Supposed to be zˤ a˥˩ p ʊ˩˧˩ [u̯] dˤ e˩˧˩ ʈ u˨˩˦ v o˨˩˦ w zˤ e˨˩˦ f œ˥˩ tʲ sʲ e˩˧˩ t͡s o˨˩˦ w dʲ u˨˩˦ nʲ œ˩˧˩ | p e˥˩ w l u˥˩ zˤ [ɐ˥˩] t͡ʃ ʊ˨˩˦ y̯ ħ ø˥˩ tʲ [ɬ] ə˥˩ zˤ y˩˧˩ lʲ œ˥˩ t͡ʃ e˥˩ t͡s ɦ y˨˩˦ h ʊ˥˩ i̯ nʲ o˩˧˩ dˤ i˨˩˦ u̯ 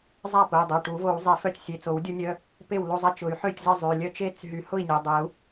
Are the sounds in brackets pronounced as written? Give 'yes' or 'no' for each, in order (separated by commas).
no, yes, no